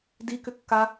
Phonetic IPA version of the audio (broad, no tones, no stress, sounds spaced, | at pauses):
d i k ʏ kː a